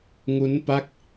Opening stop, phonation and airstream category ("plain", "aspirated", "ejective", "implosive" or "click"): plain